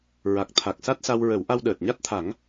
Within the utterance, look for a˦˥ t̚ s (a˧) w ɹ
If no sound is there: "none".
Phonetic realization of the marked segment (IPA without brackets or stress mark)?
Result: a˧